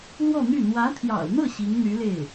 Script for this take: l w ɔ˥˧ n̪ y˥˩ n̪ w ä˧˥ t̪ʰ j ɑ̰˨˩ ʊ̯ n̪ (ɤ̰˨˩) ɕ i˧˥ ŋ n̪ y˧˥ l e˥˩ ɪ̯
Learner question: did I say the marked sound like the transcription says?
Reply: no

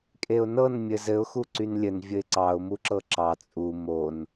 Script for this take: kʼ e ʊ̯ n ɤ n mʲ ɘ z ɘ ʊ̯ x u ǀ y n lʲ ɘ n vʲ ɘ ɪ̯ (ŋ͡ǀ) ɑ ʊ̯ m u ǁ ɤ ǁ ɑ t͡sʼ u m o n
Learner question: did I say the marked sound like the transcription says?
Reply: no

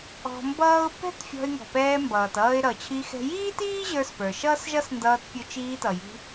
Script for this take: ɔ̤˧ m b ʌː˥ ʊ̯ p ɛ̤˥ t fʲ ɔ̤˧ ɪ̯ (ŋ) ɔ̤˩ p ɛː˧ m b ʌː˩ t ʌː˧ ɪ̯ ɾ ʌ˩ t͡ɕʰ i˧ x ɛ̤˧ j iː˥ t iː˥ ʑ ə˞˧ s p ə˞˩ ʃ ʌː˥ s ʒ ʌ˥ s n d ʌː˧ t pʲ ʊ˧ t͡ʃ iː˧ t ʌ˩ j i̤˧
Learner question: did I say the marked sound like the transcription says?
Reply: yes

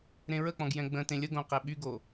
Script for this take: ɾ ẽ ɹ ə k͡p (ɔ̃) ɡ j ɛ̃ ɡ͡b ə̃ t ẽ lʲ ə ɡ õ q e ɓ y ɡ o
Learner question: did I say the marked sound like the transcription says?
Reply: yes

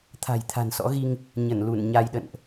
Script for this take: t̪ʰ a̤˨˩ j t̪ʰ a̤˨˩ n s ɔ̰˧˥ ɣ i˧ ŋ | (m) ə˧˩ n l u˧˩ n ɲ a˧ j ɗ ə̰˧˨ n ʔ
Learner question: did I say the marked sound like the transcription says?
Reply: no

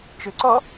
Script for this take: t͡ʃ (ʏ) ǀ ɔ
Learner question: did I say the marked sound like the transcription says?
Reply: yes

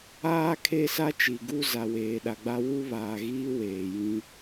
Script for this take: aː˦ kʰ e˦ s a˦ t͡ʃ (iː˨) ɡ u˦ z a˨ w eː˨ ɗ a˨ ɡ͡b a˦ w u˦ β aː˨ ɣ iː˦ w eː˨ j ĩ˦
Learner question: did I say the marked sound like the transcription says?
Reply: no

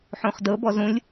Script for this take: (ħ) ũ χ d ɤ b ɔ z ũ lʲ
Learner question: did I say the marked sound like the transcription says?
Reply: yes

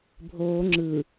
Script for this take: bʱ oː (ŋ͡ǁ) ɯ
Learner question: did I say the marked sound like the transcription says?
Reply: yes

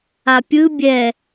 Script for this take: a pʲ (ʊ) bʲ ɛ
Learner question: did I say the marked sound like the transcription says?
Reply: no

